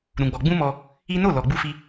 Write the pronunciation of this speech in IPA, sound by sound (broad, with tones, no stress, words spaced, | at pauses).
ɾũ˧ɡ͡bɔ˧ ɡ͡bũ˦mɔ˧ | i˦ no˦˨ lɔ˧ɡ͡bu˦fi˦